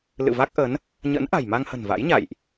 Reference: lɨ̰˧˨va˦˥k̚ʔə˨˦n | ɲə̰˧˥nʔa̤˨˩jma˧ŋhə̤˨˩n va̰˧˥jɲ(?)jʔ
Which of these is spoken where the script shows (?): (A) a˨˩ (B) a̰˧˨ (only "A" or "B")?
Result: B